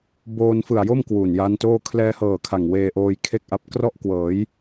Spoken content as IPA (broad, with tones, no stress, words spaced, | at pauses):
boː˧nfɯ˨˩a̯jo˥˩m kwu˨˩nja˦˥ntoː˥˩ kʰlɛː˧hɤː˨˩ kʰa˨˩ŋweː˧ʔoː˧j kʰe˥˩k̚ʔa˦˥p̚ krɔ˥˩ʔ kwɤː˩˦j